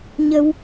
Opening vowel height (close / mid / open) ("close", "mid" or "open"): mid